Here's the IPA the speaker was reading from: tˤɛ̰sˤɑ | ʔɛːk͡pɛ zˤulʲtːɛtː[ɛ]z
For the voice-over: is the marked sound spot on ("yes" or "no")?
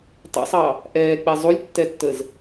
no